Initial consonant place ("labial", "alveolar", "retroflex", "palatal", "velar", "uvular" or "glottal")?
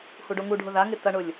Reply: glottal